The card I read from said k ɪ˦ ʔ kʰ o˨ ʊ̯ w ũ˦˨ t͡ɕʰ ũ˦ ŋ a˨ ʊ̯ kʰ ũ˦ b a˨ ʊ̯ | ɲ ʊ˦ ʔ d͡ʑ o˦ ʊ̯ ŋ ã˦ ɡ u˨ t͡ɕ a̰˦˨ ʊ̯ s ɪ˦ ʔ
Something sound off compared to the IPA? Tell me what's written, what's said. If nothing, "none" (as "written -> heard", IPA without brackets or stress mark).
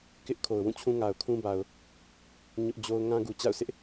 none